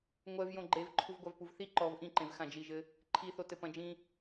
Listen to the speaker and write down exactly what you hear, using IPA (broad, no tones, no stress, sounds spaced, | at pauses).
ŋʷ ɛ v j õ ɡ͡ǃ e v ǃʰ u v ɡʷ a v p u v θ i ǃ ɔ v ʔ ĩ ǃ ẽ v x ã d͡ʒ i ʒ ɘ | ǃʰ i θ o t ɘ p ɐ̃ d͡ʒ ĩ